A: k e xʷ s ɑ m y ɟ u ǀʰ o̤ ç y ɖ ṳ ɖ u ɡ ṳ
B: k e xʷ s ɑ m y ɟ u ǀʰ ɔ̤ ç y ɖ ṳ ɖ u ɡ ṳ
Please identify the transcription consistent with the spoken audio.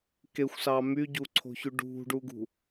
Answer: A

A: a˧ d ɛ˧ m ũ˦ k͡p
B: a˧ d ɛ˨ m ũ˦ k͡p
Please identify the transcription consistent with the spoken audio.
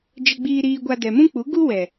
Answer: B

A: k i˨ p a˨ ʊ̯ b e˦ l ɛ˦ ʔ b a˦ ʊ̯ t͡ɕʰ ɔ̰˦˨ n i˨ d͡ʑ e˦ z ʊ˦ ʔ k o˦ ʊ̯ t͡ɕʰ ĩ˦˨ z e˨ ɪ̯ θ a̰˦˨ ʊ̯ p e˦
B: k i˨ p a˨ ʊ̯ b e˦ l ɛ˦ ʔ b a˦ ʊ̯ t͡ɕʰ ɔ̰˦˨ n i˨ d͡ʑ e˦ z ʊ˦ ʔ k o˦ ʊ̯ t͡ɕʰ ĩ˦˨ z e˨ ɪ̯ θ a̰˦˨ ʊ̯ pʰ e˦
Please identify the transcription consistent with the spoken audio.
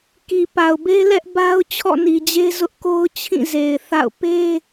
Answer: A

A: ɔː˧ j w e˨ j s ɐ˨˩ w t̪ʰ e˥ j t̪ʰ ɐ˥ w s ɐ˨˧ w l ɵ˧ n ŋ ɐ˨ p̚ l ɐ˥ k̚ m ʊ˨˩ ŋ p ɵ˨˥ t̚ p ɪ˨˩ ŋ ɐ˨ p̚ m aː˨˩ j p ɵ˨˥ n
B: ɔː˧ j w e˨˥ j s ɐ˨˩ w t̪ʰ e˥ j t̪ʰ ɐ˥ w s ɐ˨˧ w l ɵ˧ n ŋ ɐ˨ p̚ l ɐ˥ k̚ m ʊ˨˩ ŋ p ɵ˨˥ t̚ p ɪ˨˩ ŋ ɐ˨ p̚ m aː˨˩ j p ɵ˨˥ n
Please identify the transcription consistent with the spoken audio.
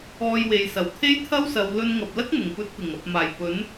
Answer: A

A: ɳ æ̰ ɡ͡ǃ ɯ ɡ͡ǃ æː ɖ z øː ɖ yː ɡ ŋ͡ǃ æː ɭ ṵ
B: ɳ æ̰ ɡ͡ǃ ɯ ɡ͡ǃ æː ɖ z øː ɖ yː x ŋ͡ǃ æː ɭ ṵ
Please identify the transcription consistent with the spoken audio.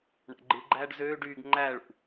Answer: A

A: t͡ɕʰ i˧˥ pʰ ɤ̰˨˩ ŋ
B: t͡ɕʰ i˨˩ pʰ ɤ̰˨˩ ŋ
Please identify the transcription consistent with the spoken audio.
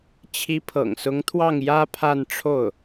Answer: A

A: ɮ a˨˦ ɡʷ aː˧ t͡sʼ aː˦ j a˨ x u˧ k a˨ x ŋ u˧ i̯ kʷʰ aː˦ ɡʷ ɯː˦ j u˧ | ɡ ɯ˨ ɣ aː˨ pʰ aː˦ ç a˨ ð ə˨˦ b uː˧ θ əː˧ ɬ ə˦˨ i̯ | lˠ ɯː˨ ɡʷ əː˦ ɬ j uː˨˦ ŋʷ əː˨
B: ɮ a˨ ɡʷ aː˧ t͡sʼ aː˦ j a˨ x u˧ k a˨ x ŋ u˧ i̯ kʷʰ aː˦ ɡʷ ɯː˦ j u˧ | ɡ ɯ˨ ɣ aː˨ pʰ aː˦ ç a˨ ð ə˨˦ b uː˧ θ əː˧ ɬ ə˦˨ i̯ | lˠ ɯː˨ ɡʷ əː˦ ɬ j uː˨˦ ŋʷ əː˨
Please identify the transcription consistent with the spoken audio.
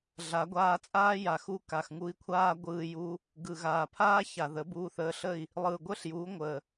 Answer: A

